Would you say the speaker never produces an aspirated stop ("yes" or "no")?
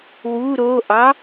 yes